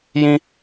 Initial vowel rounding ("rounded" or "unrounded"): unrounded